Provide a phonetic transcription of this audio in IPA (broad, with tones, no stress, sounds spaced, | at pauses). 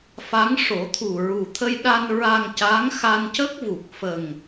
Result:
f a˧˥ ŋ ʂ o˨˩˦ t̪ʰ u˨˩ ɹ u˨˩ t̪ʰ ə˧ j ɗ a˧ n ɹ a˧ ŋ c a˧˥ ŋ x a˧ n c ə˦˥ k̚ v u˨˩ k̚ f ə˨˩ ŋ